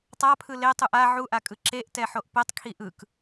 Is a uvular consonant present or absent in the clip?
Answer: absent